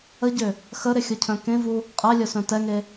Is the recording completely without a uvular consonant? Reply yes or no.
no